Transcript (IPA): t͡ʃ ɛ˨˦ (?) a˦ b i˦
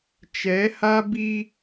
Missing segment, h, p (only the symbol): h